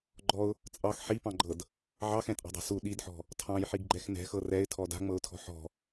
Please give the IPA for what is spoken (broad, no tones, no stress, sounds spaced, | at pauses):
ɡ͡ǃ ɔ ʊ̯ | t͡sʼ ɑ x ħ i p ɑ̃ ɡ͡ǃ ɤ d | ʕ ɑ x ɛ̃ tʼ ɑ̤ dˤ ɑ̤ s u ɗ i d ħ ɔ̤ | tʰ ɑ̃ j ħ i ɡ ɡ͡ǃ ɛ x n ɛ̤ x ɤ r ɛ ɪ̯ tʰ ɔ d a̤ ŋ͡m ɤ ʊ̯ tʰ ɔ̤ ħ ɔ̤